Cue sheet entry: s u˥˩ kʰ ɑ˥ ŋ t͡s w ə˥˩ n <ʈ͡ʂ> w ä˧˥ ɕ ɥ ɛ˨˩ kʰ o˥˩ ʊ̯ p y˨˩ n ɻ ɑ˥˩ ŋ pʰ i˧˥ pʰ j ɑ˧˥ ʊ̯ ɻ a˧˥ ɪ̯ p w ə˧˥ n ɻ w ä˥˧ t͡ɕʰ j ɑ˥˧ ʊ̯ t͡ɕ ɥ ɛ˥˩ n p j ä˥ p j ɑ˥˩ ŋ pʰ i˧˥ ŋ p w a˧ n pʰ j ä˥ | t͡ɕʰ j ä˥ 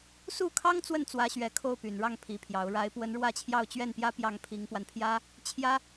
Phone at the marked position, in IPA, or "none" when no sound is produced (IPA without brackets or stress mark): t͡s